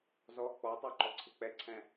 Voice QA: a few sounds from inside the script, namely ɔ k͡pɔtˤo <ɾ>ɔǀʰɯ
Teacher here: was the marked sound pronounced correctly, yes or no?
no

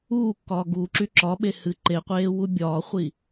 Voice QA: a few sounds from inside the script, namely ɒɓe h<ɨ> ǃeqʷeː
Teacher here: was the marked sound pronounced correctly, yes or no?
yes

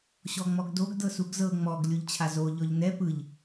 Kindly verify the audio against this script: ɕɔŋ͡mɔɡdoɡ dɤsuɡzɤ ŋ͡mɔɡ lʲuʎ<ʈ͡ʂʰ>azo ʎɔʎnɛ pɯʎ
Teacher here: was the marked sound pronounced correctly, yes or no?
no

